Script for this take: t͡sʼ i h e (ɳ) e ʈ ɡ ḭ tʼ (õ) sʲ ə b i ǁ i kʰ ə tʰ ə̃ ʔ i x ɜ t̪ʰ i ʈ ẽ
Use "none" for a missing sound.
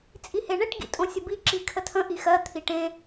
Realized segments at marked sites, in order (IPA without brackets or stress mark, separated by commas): ɳ, õ